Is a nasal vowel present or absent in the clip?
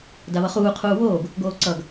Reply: absent